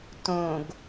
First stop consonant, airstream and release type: plain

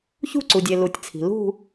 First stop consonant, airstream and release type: click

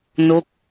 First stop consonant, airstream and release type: plain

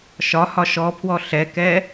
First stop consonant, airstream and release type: aspirated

